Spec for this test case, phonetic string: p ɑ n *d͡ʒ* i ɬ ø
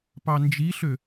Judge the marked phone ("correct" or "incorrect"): correct